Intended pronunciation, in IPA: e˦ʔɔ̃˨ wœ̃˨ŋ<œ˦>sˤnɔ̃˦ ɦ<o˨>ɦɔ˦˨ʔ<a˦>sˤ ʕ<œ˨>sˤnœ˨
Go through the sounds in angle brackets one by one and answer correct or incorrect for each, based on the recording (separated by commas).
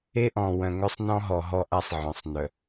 correct, incorrect, correct, incorrect